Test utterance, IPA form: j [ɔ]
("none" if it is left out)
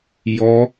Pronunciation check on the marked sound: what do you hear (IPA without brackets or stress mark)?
ɔ